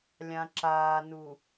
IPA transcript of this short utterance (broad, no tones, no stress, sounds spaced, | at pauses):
lʲ ã ǁ aː n u